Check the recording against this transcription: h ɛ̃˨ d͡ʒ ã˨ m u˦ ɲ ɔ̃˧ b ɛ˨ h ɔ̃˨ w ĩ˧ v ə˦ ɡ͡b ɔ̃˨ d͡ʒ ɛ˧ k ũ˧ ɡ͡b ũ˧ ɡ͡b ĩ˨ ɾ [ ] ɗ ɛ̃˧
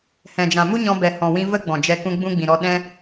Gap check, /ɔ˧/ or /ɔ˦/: ɔ˧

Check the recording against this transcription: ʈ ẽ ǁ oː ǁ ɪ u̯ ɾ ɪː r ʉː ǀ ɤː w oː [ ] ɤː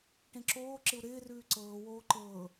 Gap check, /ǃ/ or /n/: ǃ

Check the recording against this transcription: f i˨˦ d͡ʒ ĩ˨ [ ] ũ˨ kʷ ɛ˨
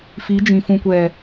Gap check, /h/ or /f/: f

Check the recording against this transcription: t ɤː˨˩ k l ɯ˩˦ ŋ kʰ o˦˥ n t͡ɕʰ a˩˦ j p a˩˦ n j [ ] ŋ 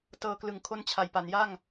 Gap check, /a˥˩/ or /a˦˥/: a˥˩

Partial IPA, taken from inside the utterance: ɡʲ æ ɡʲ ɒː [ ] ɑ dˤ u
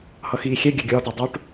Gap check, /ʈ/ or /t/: t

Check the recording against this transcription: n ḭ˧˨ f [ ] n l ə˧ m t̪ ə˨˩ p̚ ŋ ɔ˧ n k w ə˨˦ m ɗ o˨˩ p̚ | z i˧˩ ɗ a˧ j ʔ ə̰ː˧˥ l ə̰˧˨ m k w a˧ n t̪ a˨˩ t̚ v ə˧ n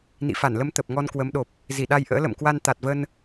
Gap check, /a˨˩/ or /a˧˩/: a˧˩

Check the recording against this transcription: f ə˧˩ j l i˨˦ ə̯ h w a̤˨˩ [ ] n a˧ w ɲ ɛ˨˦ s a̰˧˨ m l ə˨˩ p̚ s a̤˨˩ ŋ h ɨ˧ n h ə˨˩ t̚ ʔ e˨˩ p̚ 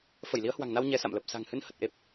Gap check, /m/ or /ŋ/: ŋ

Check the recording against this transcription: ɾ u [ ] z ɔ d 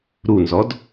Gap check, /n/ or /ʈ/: n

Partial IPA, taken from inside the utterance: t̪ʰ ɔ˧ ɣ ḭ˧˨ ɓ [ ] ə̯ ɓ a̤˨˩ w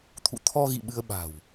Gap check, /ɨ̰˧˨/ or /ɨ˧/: ɨ˧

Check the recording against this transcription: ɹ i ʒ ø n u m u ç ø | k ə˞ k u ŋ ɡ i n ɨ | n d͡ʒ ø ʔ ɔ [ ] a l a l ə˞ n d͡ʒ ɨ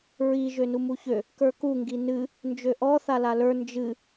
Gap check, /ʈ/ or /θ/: θ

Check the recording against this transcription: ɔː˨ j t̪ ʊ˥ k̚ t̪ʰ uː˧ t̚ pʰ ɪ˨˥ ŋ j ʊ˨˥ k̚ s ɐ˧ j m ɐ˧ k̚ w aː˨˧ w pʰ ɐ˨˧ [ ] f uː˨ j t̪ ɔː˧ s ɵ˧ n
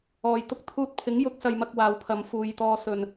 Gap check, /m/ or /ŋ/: m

